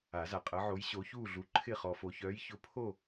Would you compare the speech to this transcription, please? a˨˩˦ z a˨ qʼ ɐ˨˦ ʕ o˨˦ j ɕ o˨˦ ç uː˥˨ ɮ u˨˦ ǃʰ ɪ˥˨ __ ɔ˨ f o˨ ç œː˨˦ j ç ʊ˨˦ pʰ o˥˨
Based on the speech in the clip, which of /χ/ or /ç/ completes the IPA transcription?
χ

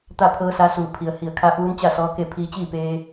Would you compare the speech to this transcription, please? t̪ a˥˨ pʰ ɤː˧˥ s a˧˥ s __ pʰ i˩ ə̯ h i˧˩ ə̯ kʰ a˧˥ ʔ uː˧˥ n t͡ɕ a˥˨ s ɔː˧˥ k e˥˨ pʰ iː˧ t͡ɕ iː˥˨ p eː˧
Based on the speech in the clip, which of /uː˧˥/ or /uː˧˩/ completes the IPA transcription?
uː˧˩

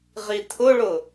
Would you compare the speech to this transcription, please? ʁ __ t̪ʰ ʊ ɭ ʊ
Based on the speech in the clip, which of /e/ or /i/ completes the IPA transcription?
i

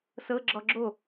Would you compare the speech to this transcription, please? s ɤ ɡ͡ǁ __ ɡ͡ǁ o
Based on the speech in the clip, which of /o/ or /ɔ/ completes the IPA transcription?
ɔ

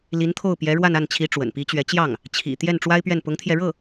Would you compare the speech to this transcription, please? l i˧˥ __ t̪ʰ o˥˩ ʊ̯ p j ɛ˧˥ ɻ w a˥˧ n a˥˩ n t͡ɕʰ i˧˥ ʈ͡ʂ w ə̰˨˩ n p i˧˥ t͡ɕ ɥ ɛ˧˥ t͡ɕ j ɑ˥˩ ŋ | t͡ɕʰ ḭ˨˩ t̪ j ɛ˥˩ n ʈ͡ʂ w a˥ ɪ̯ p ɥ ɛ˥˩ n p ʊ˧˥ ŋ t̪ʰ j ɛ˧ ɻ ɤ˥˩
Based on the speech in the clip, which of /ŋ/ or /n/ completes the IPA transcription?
n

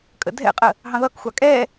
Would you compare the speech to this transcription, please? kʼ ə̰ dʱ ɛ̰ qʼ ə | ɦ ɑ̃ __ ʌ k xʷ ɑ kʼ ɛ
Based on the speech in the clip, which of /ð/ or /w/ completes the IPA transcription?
ð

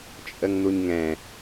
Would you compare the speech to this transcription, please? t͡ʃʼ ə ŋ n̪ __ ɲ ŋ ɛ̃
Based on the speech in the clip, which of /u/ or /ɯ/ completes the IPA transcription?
u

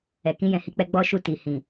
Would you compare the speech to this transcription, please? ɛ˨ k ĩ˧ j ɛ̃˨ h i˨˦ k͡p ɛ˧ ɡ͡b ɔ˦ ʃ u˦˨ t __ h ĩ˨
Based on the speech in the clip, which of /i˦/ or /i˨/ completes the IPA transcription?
i˨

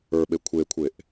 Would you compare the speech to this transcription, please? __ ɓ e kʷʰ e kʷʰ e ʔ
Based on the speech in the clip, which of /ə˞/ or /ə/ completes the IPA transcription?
ə˞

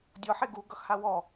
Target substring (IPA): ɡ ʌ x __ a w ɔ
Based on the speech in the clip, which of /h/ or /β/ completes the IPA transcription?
h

